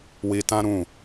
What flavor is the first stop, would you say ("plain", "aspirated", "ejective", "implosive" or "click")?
plain